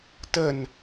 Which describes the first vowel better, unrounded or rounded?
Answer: unrounded